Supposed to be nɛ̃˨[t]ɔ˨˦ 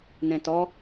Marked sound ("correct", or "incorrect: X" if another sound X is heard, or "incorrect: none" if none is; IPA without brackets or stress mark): correct